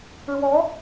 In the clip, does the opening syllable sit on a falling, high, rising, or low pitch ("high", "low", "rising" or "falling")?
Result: rising